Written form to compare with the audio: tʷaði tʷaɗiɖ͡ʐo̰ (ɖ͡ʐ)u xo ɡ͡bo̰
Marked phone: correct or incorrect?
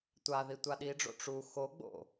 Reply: incorrect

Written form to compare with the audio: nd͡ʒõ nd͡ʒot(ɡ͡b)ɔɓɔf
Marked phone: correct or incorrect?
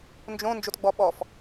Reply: correct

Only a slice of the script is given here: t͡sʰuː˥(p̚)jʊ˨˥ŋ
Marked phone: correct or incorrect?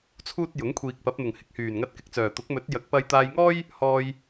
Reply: incorrect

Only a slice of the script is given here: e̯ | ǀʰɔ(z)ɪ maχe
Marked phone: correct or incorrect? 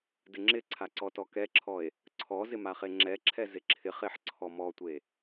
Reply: correct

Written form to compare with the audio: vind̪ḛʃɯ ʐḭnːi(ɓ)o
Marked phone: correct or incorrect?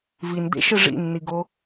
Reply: incorrect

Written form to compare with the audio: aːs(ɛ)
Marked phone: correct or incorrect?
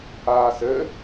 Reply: incorrect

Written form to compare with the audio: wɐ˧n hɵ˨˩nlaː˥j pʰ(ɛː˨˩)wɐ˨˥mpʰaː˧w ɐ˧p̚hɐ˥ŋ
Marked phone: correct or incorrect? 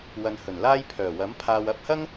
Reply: incorrect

